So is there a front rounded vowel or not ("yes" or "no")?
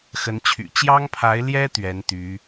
yes